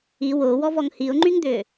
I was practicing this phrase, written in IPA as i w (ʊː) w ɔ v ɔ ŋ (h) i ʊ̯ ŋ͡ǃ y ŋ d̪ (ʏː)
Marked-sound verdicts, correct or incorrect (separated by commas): correct, correct, correct